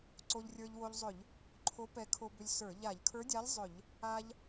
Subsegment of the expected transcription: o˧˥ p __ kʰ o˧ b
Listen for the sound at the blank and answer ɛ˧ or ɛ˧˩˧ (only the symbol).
ɛ˧